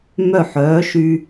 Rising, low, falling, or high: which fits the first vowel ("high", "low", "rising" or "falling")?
falling